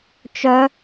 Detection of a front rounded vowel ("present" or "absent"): present